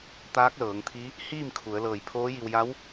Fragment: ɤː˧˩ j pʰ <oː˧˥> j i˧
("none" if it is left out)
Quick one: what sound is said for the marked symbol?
oː˧˥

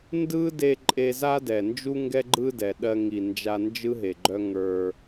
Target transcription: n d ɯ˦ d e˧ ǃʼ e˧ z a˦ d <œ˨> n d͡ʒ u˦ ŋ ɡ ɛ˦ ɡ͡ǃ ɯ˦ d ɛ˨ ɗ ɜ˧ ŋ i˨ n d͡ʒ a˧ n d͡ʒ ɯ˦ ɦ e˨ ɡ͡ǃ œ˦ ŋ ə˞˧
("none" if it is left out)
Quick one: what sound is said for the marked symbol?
ɛ˨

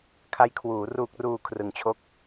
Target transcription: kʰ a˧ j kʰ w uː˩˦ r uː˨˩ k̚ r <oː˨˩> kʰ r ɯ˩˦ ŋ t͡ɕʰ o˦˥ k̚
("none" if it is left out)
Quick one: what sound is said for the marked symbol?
uː˨˩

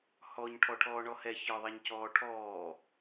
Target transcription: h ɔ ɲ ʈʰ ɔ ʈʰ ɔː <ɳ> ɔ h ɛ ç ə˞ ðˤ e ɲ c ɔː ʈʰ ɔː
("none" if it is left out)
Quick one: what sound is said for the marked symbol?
ɳ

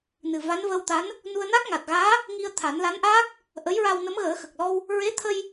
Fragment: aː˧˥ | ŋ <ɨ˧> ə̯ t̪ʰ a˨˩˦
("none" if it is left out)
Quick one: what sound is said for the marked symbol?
i˧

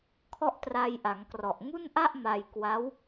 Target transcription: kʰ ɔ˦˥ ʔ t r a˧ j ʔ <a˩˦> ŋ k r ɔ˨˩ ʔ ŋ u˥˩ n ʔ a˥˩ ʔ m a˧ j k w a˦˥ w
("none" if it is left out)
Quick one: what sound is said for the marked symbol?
a˩˦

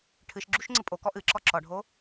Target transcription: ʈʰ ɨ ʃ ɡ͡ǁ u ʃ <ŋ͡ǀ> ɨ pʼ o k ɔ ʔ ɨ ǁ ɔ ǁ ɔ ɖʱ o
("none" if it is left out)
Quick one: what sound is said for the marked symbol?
ŋ͡ǀ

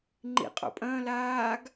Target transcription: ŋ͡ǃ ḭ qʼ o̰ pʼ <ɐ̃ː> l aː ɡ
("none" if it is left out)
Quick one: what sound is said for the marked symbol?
ɐ̃ː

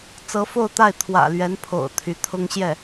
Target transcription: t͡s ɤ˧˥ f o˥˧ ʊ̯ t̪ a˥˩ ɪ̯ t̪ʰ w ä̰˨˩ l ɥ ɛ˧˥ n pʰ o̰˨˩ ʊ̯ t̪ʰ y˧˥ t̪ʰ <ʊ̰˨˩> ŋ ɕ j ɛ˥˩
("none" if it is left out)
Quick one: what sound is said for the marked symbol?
ʊ˥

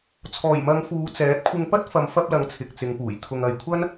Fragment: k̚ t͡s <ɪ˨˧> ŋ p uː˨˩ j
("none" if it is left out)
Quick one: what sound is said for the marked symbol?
ɪ˨˧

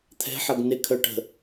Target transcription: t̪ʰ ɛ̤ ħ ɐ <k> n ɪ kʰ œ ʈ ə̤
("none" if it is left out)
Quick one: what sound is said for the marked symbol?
ɡ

